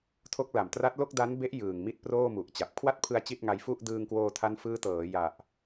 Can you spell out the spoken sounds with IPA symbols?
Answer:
tʰo˦˥k̚la˨˩m tra˦˥t̚lo˥˩k̚ da˦˥nbe˦˥ʔ jɯː˨˩ŋmi˥˩t̚proː˥˩ mu˨˩ʔt͡ɕa˨˩p̚ kʰwa˥˩t̚pʰɯ˧a̯ t͡ɕi˥˩t̚ŋa˧j fu˥˩ʔ dɯː˧ŋkwoː˧tʰa˦˥nfɯː˦˥ tɤː˩˦ja˨˩ʔ

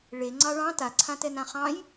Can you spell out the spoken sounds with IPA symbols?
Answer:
ɭe ŋ͡ǀɑɭɑ̃ taǀʰãtɛ nãχɑ̃j

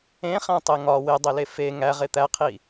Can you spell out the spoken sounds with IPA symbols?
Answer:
ẽχæ̃tˤe ŋɒ wedˤele fe ŋæʁe t̪æqʰi

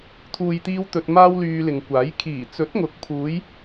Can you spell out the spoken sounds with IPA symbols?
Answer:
t̪ʰuː˨jt̪iː˧w t̪ɵ˧t̚maː˥wlyː˧ lɪ˨ŋkʷaː˨˥j kʰiː˨˩t͡sɵ˨˥t̚ŋʊ˨˥k̚pʰuː˨˧j

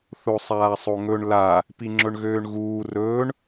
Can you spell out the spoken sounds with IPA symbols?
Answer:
θosˤaːsˤoŋɵɳ la | piŋ͡ǁɵɳɣøːɳɣuː rɵːɳ

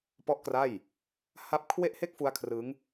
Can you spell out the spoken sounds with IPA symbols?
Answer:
pɔ˥˩ʔkra˥˩j | ha˦˥p̚kʰwe˥˩ʔhe˥˩k̚ fu˦˥a̯kʰrɯ˦˥ŋ

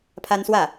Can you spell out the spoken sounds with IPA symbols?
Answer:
pʰa˥nswä˥˩

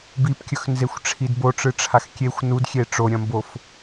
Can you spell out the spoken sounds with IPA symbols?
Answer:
bipkʲɵxnzexʷʈ͡ʂʰid boʈ͡ʂɨʈ͡ʂʰax kʲexʷ nudxʲe ʈ͡ʂoɾʲɐ̃mbof

